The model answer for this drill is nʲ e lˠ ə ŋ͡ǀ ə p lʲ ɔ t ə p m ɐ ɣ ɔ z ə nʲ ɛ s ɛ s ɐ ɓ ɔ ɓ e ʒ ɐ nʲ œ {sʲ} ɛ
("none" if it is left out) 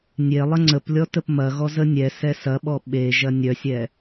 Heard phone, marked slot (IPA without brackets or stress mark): sʲ